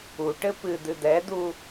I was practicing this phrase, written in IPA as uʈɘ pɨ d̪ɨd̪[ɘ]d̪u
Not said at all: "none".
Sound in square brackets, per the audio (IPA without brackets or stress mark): ɛ